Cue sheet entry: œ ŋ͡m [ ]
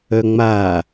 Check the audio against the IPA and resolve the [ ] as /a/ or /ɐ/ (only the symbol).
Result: a